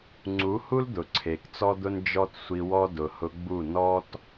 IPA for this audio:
ŋ͡ǀ u˨˦ h u˦ l d̪ ʊ˨ ǀʰ e˨ k t͡s ɔ˦ d̪ ʊ˦ n d͡ʒ ɔ˦ t sʷ i˧ w ɔ˦ d ʊ˨ h ʊ˧ ɡ͡b u˦˨ n ɔ˦ t

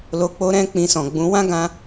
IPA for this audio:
l o˧ k͡p o˦ ɾ ɛ̃˦ k͡p ĩ˧ s ɔ̃˨ ɡ͡b ũ˨˦ w ã˦ ɡ ã˧

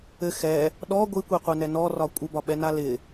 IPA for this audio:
ɘ x ɛ | ɗ ɔ ɡʷ i kʷ i qʷ ɛ n ɛ n ɔ r ɒ kʷʼ ɪ b ɒ ɓ ɛ n a l ɪ

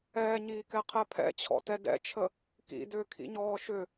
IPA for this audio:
ɛː ɲ iː k ɛ qʰ ɛ pʰ ɛ̰ t͡ɕʰ ɔ̰ t ɛ d ɛ̰ t͡ʃʰ ə | k ḭ d ʏː kʰ ḭ ɲ ɔː ʃ ʏ

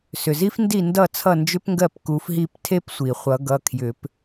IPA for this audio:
s ʏ˩ z i˥ f n d i˥˩ n d ʌ˥˩ t͡sʰ ʌ˥˩ n d͡ʒ ʏ˥ p ŋ ɡ ɜ˥˩ p k u˨˦ f ɦ i˥˩ p tʰ e˥ p sʷ i˩ χʷ ʌ˨˩˦ ɡ ʌ˩˧˩ kʰ j ʏ˨˩˦ p

